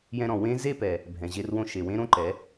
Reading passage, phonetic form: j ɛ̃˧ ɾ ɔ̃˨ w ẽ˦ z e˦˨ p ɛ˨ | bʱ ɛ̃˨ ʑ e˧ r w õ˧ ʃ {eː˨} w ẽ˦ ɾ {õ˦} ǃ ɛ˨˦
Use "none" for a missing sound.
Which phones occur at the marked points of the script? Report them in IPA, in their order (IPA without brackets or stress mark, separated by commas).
e˨, õ˦